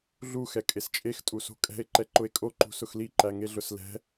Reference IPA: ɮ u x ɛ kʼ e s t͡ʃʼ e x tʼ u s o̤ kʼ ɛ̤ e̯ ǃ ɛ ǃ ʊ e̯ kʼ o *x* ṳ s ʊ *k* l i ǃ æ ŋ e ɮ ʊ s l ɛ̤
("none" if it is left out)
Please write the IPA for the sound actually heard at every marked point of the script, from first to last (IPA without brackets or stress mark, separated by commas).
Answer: ǃ, x